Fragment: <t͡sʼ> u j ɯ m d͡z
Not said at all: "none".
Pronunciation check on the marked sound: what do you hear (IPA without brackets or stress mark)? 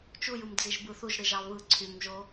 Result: t͡ʃ